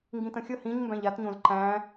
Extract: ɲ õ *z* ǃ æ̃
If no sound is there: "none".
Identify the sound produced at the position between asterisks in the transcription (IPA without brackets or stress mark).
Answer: z